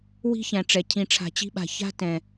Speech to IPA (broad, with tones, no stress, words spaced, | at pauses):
wi̤˦çæ̃˨ʈ͡ʂɛ˨ cʰĩ˨ʈ͡ʂʰa̤˨t͡ɕi̤˧ɓa̤˨ ça̤˦tɛ̃˨